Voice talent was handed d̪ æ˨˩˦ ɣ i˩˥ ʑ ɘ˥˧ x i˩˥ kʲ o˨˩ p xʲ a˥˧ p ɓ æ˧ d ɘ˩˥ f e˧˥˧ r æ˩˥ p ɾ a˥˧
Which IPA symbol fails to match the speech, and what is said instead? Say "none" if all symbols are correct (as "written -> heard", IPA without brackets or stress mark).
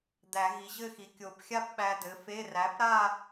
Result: none